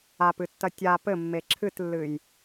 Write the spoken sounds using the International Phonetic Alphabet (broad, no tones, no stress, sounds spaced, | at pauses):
a p ɨ tː ɐ tʲ a p ɘ mː e ǁʰ ɨ t lː ɨ j